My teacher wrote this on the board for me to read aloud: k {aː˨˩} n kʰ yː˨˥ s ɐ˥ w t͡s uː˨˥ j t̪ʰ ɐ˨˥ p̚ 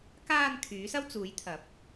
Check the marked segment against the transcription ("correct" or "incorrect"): incorrect